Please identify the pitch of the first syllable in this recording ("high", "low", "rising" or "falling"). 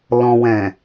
low